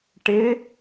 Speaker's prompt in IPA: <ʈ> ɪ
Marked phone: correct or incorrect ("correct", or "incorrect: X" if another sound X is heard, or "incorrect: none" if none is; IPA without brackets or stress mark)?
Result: correct